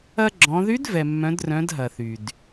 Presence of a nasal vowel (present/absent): present